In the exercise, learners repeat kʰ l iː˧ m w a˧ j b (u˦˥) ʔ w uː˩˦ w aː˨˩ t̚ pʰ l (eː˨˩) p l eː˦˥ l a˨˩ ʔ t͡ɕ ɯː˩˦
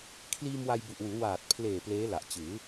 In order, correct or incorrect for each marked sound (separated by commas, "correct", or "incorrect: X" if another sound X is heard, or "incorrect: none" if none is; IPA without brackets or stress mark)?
incorrect: u˨˩, correct